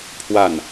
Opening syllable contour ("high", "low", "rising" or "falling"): falling